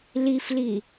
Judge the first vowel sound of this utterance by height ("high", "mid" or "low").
high